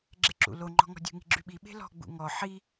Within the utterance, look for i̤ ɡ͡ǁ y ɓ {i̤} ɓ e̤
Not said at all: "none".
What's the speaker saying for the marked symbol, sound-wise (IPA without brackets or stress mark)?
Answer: i